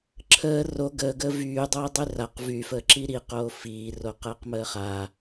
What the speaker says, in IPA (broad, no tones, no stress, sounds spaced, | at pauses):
ǁʰ əː r o ɡ əː ɡ əː v yː dˤ o ɪ̯ dˤ y r a q v y f əː ǁ i ɾ i q oː f iː r o q əː q m əː χ a